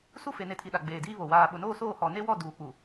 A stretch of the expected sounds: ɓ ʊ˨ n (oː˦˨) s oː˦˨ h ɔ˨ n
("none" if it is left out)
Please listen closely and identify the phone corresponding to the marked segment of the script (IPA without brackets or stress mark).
oː˦˨